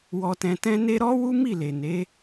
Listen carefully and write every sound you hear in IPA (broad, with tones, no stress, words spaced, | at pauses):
wɔ˧tɛ̃˧tɛ̃˦ ne˦ ɾɔ˦ wu˦mi˦˨ le˨ ne˨˦